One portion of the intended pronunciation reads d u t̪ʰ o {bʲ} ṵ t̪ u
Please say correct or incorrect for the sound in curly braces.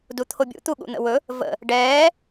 correct